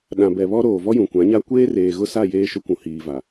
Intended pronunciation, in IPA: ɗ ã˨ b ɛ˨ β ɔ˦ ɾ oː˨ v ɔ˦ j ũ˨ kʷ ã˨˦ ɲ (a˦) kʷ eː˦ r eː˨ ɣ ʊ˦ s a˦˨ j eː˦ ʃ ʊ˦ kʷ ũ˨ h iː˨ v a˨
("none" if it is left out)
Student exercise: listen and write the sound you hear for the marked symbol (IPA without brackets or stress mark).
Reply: a˦